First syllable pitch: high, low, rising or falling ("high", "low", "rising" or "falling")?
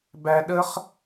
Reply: low